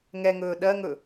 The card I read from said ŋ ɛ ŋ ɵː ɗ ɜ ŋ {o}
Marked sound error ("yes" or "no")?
yes